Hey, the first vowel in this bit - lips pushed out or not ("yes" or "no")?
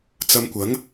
no